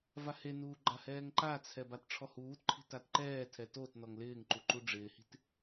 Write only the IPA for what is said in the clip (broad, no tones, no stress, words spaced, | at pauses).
vahenuː ɡ͡ǃahɛːŋǃat͡sʰɛ batʈ͡ʂʰɔhuːtǃʰi̤ tatǃɛːtʰɛ tot nɔŋlɪːŋǃu ǃuɖ͡ʐɪːhi̤t